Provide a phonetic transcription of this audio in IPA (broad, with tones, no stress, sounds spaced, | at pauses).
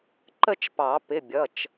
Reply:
ǃ ə˥˧ t͡ʃ p ɑ˨˩˦ p ɪ˩˧˩ bʲ ʌ˩˧˩ t͡ʃ